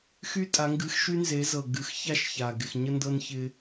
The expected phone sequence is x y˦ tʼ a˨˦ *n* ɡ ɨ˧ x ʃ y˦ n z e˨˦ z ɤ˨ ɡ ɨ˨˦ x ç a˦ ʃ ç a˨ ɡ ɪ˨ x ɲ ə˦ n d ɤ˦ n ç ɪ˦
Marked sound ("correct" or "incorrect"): incorrect